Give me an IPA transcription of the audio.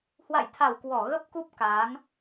h w a̰˧˨ j t̪ʰ a˧˩ w k w ɔ˧˩ ɣ ə˦˥ p̚ k u˦˥ p̚ k aː˨˦ ŋ

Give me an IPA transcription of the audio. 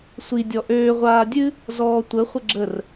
sʷ i dʲ ɔ ʔ øː ʁʷ aː dʲ ɨ | z ɔː tʷ ə χʷ ə ɡ͡ǁ ə r

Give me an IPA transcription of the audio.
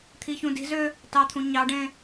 t̪ʰ i ç ũ d i̤ z ø | t ɑ t̪ʰ ũ ɲ ɑ ɖ ẽ

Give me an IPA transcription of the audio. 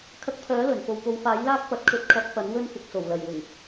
kʰ ɐ˧ k̚ pʰ œː˨˥ l ɵ˨˩ n f o˨ w p o˨˧ w f aː˨˥ j l aː˥ k̚ p ɐ˨˥ t̚ kʰ ɵ˨˥ t̚ kʰ ɐ˨˥ p̚ f ɐ˨˥ n w ɵ˥ n f ɪ˨ k̚ s o˨˩ w l ɐ˨˩ j w ʊ˨˩ ŋ

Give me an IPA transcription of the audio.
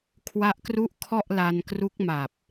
kʰ w a˦˥ ʔ k r u˦˥ ʔ kʰ ɔ˥˩ ʔ l a˧ n k r u˦˥ k̚ m a˨˩ p̚

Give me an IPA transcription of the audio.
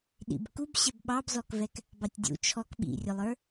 ɗ ḭ b k u b ɕ ɛ b ɓ ɑ b z ɔ k v ɛ k | b ɑ tʲ dʲ ṵ t͡ʃʰ ɔ k ɓ ḭ rʲ ʊ lˠ ə˞

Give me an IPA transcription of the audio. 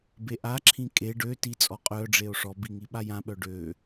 b e ʔ a ǁʰ ĩ kʼ e ɖ ø t i t͡sʼ ɔ qʼ œ ɖ͡ʐ e o̯ ʂ ɔ b i ŋ i ɓ a j ã ɓ œ ɖ ø

